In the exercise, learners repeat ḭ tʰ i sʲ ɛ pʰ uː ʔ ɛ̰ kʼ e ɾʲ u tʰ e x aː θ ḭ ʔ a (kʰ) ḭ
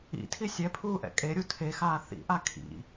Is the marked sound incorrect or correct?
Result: correct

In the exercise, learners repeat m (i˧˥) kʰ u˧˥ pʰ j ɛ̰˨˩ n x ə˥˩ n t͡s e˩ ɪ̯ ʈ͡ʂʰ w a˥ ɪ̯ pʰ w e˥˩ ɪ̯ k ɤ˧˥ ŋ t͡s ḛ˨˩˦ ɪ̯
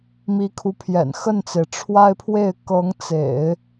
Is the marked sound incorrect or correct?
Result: correct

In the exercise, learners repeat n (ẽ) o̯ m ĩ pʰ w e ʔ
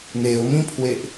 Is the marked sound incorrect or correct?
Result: incorrect: e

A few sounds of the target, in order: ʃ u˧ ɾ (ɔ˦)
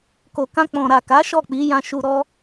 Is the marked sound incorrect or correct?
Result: correct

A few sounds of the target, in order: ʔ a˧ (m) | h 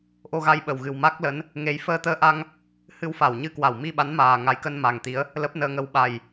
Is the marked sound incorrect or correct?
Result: incorrect: ŋ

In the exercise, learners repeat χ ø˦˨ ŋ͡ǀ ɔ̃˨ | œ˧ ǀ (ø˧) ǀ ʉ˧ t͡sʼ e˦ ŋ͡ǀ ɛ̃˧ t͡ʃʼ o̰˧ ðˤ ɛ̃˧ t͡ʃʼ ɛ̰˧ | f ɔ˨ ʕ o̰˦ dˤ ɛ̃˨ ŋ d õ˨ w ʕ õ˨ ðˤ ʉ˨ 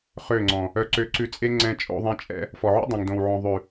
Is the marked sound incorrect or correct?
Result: correct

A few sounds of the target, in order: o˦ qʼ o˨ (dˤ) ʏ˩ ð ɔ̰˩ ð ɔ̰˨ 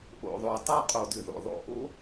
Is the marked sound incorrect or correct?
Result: incorrect: d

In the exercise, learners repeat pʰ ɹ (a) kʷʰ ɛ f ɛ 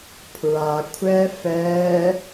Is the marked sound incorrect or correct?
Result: correct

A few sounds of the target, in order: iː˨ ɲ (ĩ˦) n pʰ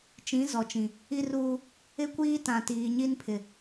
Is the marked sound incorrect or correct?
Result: incorrect: i˦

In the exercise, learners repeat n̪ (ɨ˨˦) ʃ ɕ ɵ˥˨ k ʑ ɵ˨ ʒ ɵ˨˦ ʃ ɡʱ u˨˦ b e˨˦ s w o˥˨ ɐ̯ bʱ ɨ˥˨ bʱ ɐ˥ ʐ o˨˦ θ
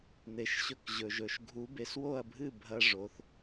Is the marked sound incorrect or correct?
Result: incorrect: e˨˦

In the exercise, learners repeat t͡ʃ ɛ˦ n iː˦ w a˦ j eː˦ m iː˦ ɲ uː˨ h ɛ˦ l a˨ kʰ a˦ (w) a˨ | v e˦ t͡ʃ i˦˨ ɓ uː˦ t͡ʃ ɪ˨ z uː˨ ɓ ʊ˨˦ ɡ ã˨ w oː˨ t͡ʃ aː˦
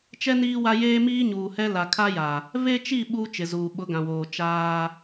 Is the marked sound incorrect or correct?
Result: incorrect: j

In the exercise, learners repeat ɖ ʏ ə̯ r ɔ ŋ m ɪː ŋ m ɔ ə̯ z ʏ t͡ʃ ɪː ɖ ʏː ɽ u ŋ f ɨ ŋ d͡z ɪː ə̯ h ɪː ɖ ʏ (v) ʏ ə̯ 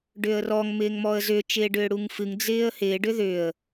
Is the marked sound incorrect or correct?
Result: incorrect: ð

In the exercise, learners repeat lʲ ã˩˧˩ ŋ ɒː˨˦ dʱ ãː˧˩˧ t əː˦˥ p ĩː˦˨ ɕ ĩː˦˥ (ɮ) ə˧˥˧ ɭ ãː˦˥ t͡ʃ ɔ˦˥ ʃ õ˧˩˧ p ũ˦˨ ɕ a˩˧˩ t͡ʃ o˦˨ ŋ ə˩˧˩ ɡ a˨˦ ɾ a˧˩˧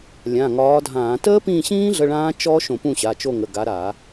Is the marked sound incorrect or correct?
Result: correct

